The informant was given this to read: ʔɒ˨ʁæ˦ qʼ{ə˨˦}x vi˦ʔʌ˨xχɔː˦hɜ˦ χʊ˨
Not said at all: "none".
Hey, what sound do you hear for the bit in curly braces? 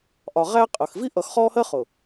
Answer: ə˨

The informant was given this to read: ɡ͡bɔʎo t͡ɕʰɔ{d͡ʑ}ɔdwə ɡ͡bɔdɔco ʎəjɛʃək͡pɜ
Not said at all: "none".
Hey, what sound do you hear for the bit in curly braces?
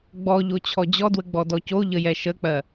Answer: d͡ʑ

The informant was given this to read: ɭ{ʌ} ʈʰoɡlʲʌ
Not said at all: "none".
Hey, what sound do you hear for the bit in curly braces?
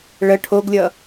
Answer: ə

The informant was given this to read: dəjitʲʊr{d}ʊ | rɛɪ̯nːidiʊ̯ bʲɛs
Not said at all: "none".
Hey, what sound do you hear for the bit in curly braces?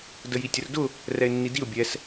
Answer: d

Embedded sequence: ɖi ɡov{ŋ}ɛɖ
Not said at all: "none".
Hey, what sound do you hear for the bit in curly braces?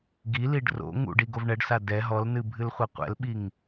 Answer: ɳ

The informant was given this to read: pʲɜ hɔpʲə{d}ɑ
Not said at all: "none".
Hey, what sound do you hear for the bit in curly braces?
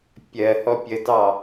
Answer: d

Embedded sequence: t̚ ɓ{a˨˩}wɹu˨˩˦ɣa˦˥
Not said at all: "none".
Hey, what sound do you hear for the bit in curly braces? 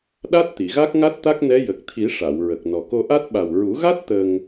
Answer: a˨˩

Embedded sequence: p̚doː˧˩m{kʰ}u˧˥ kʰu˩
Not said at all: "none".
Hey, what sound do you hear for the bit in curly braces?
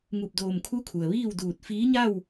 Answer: kʰ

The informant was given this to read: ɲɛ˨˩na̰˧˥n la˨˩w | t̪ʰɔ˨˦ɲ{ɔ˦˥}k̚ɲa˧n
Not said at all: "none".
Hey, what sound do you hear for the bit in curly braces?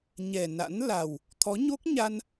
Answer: o˦˥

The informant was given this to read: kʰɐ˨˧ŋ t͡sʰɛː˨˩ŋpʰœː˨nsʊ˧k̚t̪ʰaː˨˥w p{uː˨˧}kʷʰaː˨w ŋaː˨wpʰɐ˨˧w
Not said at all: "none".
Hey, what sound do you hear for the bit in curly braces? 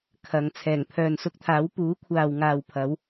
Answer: uː˨˥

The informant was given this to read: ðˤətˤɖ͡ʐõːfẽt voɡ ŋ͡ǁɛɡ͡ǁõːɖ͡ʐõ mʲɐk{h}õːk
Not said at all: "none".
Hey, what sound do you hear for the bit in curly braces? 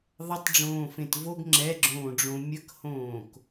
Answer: h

